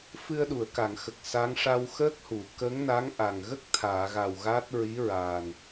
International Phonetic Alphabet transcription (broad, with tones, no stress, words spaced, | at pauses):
fɨ˧ə̯ɗu˨˩˨ə̯ka˨˩˨ŋxə˨˩k̚ sa˧˥ŋ ʂa˧wxəː˦˥k̚hu˨˩˨ kə˧˥ŋ na˧˥ŋʔa˨˩ŋɣə˦˥k̚ t̪ʰaː˨˩˨ɣa˨˩w ɣaː˦˥t̚ ɹi˧˥ɹaː˨˩n